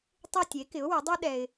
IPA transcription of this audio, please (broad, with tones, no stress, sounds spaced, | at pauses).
tˤ e˦˨ tʲ e˩˥ k ɪ˩˥ ʊ̯ w ɪ˩˥ dˤ u˦ ɗ ɛ˨ ɪ̯